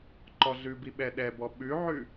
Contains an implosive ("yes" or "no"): yes